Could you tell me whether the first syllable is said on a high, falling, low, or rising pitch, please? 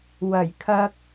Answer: low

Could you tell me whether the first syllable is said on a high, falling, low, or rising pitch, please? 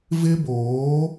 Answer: high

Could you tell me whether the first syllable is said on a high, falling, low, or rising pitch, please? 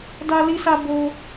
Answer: high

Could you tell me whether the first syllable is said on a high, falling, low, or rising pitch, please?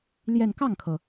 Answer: falling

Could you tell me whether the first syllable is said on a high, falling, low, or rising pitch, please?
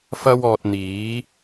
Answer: high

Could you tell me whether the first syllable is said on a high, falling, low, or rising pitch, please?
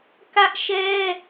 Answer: high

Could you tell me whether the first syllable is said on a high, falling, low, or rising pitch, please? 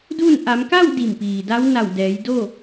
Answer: falling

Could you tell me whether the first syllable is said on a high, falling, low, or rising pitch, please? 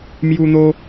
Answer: high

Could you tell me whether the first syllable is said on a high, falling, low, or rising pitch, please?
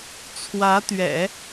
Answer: rising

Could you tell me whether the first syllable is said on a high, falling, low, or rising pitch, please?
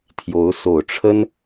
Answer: rising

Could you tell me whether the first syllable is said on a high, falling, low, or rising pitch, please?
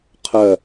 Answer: falling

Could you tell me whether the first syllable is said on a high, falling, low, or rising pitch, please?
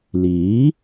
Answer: rising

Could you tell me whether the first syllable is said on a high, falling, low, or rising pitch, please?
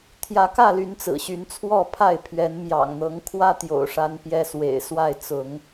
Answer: rising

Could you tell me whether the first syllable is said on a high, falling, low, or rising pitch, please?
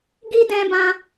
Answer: high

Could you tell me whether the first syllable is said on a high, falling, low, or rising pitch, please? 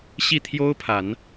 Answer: falling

